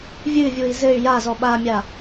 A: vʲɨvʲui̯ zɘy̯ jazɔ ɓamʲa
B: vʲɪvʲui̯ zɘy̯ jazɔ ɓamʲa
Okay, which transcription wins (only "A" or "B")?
A